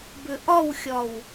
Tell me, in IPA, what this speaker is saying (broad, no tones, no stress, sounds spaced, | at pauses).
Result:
b ʏ ʔ ɒ w xʲ ɒ w